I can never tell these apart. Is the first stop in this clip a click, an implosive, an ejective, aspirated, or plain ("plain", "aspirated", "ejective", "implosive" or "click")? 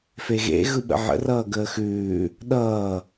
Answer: implosive